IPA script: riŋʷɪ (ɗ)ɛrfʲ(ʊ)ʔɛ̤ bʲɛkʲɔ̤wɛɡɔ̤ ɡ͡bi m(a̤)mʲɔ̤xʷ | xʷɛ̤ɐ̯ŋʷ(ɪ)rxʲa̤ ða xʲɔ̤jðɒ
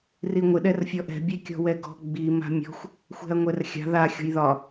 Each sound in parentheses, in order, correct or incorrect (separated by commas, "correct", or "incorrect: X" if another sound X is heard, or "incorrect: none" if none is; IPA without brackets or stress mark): correct, incorrect: ɔ, correct, incorrect: ɛ